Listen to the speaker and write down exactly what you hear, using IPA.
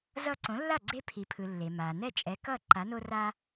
zʌ˧ ǀõ˩˥lːa˥˩ ɡ͡ǀe˧pʰi˩pʰɯ˩ lːe˩ma˩ nɛ˥˩t͡ʃʼɛ˩˥kʌ˥˩ ǃa˩˥no˥ ra˥

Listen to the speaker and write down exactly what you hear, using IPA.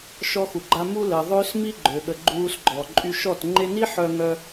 ʃɔ˧xu˨ɡ͡ǃa˧ mu˧ləː˨ ðˤø˦smi˦ ɡ͡ǃø˨ɠə˨ ɡ͡ǃuː˧sɡ͡ǃɔ˨ ǃʼy˧ʃɔ˦˨t ŋ͡ǃe˧ni˦ ħœ˧ ŋœ˧

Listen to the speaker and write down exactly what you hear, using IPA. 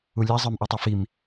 ulʲa zˤə˞mʔutˤifim

